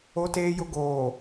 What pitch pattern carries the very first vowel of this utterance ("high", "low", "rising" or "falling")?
low